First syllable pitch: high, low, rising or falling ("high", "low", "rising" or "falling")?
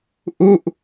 falling